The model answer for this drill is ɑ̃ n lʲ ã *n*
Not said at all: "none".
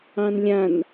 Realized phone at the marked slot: n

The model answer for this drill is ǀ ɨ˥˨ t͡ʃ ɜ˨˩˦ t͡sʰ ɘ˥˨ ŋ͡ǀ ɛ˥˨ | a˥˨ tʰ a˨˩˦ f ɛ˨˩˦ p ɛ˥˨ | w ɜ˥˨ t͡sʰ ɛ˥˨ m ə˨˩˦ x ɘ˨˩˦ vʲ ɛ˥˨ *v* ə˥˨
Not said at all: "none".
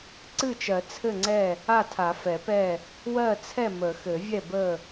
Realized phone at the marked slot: b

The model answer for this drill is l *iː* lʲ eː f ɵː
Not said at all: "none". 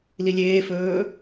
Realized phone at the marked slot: i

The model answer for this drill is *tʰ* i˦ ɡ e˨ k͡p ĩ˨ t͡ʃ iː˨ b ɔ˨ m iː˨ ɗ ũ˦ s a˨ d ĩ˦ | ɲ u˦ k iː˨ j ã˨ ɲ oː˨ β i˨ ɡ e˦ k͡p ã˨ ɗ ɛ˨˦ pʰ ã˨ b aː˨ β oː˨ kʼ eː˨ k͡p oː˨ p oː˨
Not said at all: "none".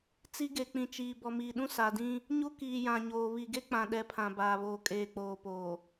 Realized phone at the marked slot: t͡s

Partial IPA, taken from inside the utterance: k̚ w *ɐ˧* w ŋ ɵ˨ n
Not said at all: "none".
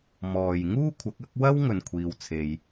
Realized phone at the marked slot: ɐ˥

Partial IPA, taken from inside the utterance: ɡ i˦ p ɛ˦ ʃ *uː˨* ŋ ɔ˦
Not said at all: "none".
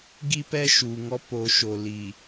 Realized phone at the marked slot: uː˨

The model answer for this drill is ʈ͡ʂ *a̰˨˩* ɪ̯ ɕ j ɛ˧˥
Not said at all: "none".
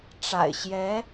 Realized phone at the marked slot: a̰˨˩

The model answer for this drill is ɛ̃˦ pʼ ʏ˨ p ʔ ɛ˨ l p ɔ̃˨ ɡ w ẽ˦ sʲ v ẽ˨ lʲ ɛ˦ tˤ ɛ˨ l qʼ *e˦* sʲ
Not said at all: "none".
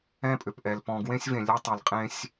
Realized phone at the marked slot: ẽ˦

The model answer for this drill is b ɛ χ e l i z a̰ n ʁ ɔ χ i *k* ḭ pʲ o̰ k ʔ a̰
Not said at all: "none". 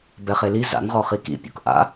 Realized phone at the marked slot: k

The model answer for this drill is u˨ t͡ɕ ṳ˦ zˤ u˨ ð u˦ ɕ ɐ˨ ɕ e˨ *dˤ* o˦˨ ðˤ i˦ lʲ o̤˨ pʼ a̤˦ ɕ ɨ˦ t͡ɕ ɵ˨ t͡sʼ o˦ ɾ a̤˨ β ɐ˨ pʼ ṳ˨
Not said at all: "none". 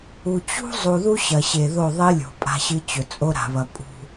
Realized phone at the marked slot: ð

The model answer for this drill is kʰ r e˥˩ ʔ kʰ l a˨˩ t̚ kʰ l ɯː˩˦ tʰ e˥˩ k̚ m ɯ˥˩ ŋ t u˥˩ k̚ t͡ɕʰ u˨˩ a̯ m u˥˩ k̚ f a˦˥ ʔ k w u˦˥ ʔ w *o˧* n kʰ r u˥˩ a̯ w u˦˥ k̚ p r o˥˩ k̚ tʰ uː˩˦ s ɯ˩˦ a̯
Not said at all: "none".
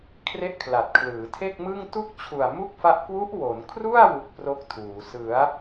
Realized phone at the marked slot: o˩˦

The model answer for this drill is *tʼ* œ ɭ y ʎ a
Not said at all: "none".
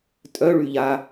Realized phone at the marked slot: tʼ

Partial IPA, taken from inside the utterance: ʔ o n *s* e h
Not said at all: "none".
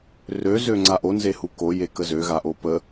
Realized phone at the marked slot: z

